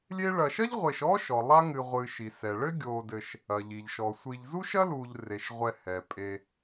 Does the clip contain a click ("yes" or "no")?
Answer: no